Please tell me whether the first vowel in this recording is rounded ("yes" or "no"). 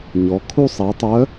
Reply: yes